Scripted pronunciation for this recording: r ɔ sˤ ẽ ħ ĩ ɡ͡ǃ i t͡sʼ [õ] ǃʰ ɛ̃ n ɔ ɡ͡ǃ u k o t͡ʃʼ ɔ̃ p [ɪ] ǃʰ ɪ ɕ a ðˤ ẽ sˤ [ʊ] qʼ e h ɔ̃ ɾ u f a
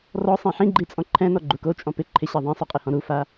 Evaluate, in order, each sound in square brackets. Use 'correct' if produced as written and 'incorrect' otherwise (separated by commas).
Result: incorrect, correct, correct